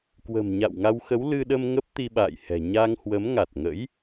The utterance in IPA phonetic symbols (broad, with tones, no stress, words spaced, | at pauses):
kwə̤˨˩mɲa̰˧˨wŋa˧wxə˨˦w lɨ˧ɗə˧m ŋə˦˥p̚t̪i˧ɓa̰ː˧˨jhɛ̤˨˩ ɲa˧ŋhwə˨˦m ŋa˨˩t̚ŋə̰˧˥j